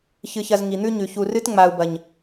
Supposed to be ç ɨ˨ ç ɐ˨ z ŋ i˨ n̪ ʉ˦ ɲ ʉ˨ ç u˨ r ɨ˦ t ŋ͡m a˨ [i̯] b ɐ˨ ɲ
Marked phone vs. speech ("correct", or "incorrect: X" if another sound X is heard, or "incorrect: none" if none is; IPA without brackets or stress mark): incorrect: u̯